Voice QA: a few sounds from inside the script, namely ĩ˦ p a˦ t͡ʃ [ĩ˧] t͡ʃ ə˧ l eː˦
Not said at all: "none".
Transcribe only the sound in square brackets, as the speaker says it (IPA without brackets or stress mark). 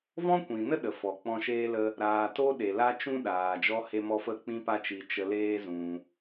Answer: i˧